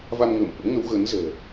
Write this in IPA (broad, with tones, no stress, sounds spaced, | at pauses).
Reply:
v a˧ m ŋ əː˧˩ m ʔ ə̰˧˥ m ŋ ə˨˦ w ɣ ə˨˦ n z ɛ̤˨˩